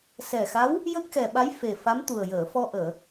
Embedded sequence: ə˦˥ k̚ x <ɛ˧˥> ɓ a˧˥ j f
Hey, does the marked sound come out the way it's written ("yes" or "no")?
no